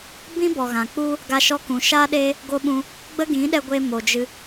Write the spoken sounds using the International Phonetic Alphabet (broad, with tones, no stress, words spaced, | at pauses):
bĩ˦ bɔ˨ɣã˨ k͡pu˧ | ɡa˧ʃɔ˦ kũ˨ ʃaː˦ɗeː˦ | ɡo˦ɓũ˧ | ɡ͡bə˦ɡĩ˨˦ɗɛ˧ɡʷe˧ mo˨d͡ʒɨ˧